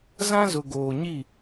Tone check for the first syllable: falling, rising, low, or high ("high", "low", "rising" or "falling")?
high